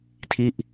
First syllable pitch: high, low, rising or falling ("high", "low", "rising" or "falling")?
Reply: falling